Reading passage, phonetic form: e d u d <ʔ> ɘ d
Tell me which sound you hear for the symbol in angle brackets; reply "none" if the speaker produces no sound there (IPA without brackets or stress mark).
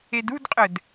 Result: qʼ